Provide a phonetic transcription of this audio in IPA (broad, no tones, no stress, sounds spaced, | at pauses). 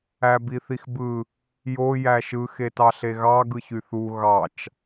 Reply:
æ b i θ i x b ɯ | j o j æ ʃ ɯ x e t ɑ ɬ e ɣ ɑ ɡ ɯ ç y θ u ɣ ɑ t͡ʃ